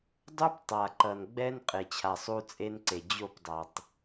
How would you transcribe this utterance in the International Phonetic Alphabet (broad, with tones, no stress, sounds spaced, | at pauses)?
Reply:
dˤ u˦ p tˤ a˨ ǃ ʌ˨ n ɡ͡b ɛ˦ n qʼ e˨ t͡ɕʰ a˨ sˤ u˦ t͡sʼ e˦ n ǀ e˨ d͡ʑ o˦˨ p dˤ a˨ tˤ